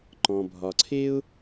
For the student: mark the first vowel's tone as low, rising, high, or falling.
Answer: low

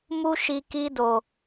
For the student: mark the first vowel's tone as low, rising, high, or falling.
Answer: high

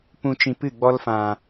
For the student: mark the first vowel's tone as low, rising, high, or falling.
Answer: low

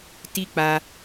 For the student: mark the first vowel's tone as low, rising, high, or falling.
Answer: high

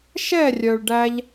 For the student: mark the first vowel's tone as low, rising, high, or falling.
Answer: falling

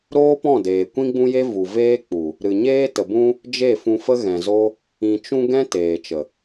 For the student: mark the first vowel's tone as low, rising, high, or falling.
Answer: high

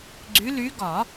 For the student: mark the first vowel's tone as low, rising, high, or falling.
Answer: rising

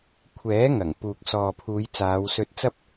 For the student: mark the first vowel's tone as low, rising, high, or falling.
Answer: rising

